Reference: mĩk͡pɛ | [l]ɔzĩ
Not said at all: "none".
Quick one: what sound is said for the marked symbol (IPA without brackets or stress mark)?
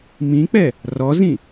r